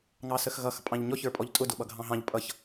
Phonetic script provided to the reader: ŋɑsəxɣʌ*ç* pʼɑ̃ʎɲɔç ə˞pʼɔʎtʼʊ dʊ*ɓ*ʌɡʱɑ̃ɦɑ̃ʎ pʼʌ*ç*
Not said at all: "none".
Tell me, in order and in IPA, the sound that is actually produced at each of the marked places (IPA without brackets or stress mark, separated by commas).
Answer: x, ɓ, ç